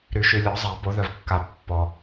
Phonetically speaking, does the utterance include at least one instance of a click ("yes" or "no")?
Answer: no